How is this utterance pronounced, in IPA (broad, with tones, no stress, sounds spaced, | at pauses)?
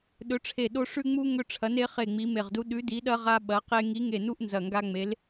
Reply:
ɗ ɵ˨˥ ʈ͡ʂʰ e˧˩ ɗ o˦ ʂ ʉ˦ ŋ͡m u˦ ŋ ɵ˦ ʈ͡ʂʰ ɐ˨˥ n e˨˥ χ e˧˩ ŋ͡m i˨˥ m e˧˩ ʁ d u˦ ɗ ʉ˨˥ d i˨˥ ɗ ɐ˦ ʁ a˦ ɓ ɐ˨˥ q e˦ ŋ i˨˥ ŋ e˧˩ n u˦ ʔ n z ɐ˧˩ ŋ ɡ a˦ ŋ͡m e˨˥ l